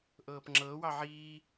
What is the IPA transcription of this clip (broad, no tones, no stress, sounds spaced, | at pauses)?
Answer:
ʔ ɤː p ŋ͡ǁ ɤː w ɑ ʕ iː